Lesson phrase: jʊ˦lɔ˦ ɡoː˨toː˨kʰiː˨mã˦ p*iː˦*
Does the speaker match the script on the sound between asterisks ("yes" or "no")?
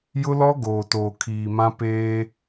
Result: no